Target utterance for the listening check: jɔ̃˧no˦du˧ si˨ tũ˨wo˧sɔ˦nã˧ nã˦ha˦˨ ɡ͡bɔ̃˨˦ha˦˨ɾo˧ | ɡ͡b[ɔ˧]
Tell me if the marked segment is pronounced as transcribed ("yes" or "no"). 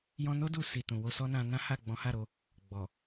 no